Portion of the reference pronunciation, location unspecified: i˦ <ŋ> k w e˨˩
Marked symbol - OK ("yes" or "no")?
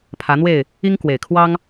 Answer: yes